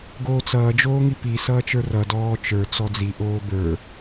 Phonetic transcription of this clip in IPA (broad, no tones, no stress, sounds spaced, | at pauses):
ɡ oː t͡s ʌː d͡ʒ oː ŋ i p i s ʌː t͡ʃ ə˞ r ʌ d ɔː t͡ʃ ə˞ t͡s ɔ d͡z i ʔ oː b ə˞